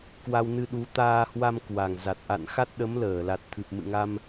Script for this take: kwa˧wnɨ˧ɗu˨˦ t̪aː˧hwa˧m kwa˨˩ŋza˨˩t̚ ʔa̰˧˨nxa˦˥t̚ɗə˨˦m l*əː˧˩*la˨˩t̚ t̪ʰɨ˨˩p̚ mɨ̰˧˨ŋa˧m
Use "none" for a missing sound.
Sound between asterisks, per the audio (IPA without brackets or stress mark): əː˧˩